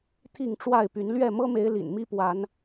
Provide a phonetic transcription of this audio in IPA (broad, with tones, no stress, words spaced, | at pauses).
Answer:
t̪ʰi˥˨ŋʈ͡ʂwa˥˨ɪ̯py˨˦n lɥɛ˥˨mɤ˦me˨˦ɪ̯ lḭ˨˩nmi˦pwa˨˦n